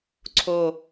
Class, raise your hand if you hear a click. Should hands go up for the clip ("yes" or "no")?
yes